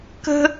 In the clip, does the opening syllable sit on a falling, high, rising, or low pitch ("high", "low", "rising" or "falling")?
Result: high